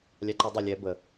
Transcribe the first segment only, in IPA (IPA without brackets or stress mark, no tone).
lʲ